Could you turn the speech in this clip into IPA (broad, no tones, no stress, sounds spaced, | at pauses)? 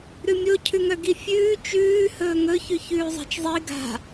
ɾ ʉ mʲ o cʰ ʉ ŋ œ ɡ i fʲ ʉː t͡ʃ ʉː h ɵː ŋ ɵ ç ʉ ç ʉː zˤ a̤ t͡ʃ zˤ i ɡ a̤